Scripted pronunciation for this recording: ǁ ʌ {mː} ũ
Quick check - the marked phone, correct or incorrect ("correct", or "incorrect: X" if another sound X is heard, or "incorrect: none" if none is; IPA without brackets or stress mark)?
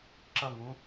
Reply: incorrect: ŋ